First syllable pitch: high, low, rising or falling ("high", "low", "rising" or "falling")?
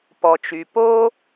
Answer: low